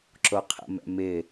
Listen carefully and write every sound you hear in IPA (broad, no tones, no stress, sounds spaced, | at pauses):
ǁ o qʰ ə̰ m ɛ̰ m ɪ